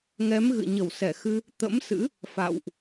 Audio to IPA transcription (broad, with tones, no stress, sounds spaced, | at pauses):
ŋ ɛ˨˦ m ɣ ɨ̰˧˨ ɲ ə˧˩ w s ɛ˧˩ x ɨ˧ | t̪ ə̰˧˥ m s ɨ̰˧˥ | f a̰˧˨ w ʔ